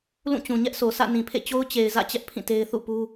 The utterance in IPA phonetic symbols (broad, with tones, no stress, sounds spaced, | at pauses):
l ũ˦˨ t͡ɕ ũ˨ ɲ ɛ˦ ʔ s o˨ s ä̰˦˨ n ĩ˨ pʰ ḛ˦˨ t͡ɕ o˦ ʊ̯ t͡ɕ e˨ ɪ̯ z ä̰˦˨ t͡ɕ ɛ˦ ʔ pʰ ĩ˦˨ t e˦ ɪ̯ θ ṵ˦˨ p u˦